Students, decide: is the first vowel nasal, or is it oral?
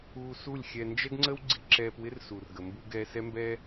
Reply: oral